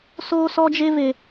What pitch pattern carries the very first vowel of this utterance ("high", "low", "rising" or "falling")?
high